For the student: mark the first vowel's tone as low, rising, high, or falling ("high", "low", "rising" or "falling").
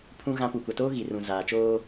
high